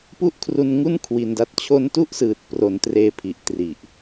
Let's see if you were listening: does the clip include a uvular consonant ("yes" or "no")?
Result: no